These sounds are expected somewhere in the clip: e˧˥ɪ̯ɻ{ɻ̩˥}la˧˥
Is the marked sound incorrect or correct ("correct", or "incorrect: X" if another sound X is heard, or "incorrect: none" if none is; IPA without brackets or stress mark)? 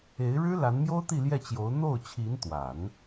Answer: correct